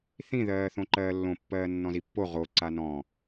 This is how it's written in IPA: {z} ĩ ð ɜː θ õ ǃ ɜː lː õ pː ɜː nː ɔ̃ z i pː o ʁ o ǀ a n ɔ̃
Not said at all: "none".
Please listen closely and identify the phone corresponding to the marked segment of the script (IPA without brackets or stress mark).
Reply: θ